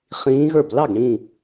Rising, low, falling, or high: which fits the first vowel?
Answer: rising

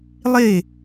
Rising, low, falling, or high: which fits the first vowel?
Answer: falling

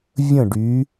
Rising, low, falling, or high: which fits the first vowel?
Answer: falling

